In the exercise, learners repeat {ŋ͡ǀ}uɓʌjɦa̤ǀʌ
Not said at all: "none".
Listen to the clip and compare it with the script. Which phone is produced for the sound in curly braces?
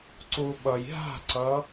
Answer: ǀ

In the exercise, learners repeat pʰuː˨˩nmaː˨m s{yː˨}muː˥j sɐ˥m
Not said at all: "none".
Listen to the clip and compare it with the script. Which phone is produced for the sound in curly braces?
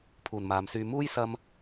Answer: yː˨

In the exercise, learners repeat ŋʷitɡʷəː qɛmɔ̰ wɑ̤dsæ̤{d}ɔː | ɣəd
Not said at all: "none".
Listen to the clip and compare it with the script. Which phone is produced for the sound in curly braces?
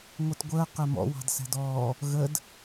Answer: d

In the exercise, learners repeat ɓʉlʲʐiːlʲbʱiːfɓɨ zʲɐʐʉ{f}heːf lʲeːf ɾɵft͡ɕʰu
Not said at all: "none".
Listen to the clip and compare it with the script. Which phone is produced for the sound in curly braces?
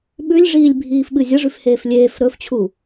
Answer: f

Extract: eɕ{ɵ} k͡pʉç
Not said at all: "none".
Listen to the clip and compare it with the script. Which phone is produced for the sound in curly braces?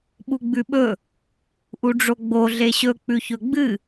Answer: ɵ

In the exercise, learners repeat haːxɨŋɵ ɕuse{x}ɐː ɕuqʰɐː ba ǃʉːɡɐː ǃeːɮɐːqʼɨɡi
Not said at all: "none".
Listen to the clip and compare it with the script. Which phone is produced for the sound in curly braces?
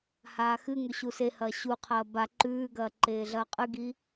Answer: h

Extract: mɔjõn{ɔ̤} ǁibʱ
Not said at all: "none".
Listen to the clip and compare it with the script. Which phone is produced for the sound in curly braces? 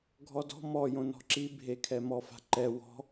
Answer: ɔ̤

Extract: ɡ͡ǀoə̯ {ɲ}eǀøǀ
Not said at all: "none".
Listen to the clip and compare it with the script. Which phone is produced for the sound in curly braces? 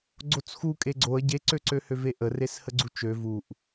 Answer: ɟ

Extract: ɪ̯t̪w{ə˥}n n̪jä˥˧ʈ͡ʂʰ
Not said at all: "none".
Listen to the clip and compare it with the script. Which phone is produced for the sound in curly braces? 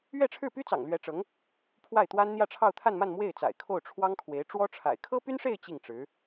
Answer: a˥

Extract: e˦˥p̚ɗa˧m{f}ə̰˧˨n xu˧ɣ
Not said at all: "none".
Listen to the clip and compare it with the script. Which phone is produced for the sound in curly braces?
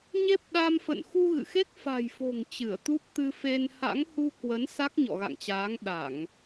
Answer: f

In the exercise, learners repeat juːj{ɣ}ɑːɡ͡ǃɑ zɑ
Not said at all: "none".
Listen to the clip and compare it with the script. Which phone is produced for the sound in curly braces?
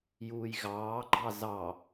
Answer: ɣ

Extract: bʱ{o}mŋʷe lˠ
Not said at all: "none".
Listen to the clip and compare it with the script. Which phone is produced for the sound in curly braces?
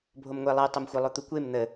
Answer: o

